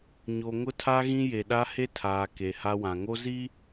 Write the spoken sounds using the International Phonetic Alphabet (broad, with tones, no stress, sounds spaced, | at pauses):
ɲ o˨ ŋ ʊ˦ tʰ a˦ ɣ ĩ˦ j e˨ ɗ a˦ h e˦ tʰ aː˨ k e˨ h a˦ w ã˨ ŋ o˦ z i˦